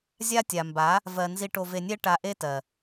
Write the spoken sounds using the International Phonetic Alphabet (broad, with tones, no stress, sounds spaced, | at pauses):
zʲ a˦ tʲ a˨ m b a˨˦ | v ɜ˧ n z i˧ ʈ o˧ v e˧ nʲ ɛ˦ ʈ a˧ ʔ e˦ t ɜ˨